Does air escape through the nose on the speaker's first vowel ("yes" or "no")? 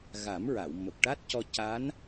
no